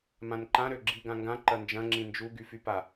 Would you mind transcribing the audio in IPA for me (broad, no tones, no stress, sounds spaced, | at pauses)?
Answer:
m ã n ǃ ã ɾ ø ɡ͡ǁ i ɡ ã ŋ ɡ ã ǃ ɐ n d͡ʒ ɐ̃ ŋ͡ǁ ĩ n d͡ʒ u ɡ y f y p a